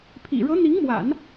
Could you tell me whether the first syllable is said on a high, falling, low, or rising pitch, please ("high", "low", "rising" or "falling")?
low